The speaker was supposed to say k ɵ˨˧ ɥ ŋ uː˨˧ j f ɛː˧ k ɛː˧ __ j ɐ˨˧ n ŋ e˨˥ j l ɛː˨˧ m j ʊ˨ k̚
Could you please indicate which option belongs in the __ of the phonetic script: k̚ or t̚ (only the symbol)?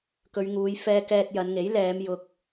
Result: t̚